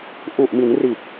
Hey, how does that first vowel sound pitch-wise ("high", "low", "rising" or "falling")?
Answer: low